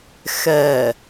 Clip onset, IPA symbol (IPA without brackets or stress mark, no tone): x